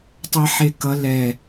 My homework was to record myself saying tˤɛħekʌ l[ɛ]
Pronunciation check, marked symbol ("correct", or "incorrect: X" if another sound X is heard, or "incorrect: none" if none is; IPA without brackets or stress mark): correct